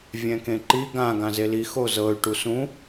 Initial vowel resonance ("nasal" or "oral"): nasal